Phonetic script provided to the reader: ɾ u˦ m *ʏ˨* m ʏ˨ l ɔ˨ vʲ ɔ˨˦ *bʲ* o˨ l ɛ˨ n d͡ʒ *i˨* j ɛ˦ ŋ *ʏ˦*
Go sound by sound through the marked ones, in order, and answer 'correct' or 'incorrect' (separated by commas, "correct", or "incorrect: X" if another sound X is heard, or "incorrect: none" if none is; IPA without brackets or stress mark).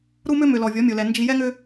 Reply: incorrect: ʏ˦, incorrect: mʲ, correct, correct